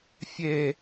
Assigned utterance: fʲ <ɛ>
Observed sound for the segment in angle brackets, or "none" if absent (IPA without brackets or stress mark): e